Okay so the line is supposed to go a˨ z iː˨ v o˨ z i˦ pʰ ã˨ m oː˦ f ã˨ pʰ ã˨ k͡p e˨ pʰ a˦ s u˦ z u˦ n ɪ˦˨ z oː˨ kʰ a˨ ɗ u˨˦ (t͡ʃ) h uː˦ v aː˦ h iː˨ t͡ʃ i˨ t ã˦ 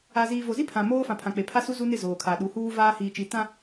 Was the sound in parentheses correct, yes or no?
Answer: no